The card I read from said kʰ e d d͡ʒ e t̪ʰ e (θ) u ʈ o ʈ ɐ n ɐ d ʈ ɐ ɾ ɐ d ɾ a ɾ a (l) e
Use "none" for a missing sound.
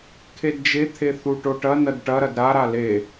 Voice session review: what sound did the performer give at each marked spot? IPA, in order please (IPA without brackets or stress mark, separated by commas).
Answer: θ, l